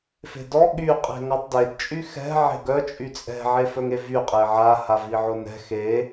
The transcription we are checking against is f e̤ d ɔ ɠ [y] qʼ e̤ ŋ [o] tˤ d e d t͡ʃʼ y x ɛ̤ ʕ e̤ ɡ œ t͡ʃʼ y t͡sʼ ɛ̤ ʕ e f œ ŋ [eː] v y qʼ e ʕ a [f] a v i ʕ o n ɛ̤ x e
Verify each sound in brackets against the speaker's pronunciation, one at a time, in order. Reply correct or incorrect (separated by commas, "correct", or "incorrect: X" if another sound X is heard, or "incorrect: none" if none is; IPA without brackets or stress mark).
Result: correct, incorrect: ɔ, incorrect: e, incorrect: h